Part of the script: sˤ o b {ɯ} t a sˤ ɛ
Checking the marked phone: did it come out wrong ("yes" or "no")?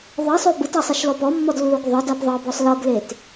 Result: no